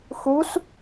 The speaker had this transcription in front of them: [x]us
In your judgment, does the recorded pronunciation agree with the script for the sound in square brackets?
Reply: yes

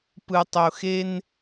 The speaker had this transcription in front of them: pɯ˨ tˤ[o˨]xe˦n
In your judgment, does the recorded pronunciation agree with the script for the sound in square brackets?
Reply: yes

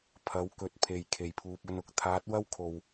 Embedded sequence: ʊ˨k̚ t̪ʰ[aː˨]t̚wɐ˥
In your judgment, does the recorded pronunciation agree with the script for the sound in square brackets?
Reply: no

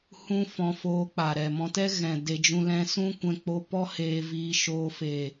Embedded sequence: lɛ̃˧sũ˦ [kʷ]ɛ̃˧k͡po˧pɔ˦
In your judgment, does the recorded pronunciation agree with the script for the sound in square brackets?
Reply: yes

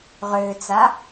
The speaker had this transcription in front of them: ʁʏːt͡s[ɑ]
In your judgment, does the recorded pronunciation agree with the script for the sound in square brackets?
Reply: no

